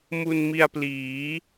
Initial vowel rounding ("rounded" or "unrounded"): rounded